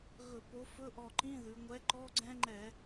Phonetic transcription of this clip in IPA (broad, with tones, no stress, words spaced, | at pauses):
ɣɵ˧˩˧po˨˥ fɵ˧˥˧ʔɔ˧˩ǃĩ˧˥˧ðʉ˩˧ ŋʷɛ˨˥ǃɔ˧˥˧ɡ͡ǀɛ̃˦˥ŋ͡ǃɛ˧˩˧